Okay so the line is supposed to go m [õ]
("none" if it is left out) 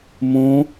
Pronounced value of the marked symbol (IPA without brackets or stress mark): õ